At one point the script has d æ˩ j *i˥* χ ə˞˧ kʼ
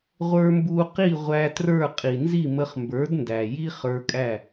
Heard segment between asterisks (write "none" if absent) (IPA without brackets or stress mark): i˥